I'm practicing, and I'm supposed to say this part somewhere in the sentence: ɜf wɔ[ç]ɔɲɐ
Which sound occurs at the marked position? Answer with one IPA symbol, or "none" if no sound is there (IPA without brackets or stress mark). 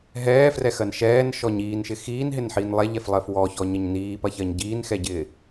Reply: ç